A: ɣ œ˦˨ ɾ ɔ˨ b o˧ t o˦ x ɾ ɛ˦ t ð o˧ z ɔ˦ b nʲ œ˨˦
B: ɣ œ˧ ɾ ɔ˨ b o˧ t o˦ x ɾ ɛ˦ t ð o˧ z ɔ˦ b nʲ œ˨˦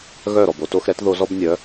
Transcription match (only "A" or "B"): A